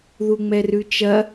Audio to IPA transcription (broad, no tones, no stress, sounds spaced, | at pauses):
ð u ŋ͡m ɛ r ʉ t͡ʃ ɐ